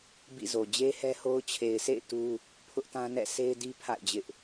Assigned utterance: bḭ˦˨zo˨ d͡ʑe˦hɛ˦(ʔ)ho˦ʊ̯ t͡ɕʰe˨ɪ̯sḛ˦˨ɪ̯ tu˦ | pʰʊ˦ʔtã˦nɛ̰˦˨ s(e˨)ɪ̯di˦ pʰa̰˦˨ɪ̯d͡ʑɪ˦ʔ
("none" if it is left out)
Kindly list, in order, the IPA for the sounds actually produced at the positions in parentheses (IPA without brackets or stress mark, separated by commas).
none, e˦